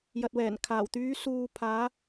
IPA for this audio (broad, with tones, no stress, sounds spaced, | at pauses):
j ɐ˨ t̚ w ɛː˨˩ n kʰ aː˨˩ w t̪ yː˨˧ s uː˨ pʰ aː˨˧